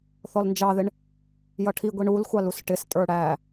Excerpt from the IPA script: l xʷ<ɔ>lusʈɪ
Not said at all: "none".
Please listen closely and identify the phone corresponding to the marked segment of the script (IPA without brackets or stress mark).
ɑ